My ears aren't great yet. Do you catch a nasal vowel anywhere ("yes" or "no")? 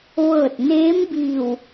no